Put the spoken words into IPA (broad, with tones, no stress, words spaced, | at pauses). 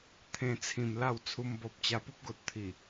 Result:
t̪ʰẽ˧t͡sʰĩ˨˩m la˥˧wt͡sʰu˧mbɔ˨p̚ t͡ɕa˧pu˦p̚ɡo˨t̚ t̪ʰi˨˩